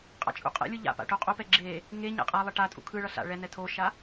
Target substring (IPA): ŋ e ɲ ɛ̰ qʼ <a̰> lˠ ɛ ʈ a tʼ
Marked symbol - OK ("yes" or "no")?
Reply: no